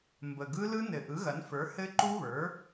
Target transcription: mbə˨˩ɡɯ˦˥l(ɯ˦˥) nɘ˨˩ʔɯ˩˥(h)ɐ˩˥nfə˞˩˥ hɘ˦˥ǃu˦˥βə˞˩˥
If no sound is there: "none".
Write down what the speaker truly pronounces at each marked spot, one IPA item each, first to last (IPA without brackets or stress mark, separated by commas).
ɯ˦˥, ɣ